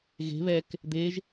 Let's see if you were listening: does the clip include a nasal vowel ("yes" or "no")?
no